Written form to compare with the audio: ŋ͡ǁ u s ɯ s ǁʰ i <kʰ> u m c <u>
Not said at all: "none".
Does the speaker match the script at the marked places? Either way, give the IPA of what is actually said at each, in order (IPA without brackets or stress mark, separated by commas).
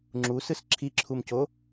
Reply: ǁʰ, o